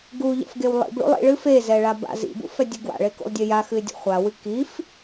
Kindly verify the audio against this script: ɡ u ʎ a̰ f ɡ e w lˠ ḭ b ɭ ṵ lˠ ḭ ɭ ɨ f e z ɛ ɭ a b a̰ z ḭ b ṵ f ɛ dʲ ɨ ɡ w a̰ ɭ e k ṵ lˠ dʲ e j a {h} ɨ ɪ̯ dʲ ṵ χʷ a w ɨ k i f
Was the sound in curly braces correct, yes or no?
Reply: no